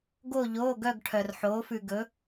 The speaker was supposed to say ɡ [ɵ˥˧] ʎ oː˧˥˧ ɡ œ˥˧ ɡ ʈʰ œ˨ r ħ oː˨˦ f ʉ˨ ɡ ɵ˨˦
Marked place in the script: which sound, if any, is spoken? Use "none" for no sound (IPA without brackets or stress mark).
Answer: o˥˧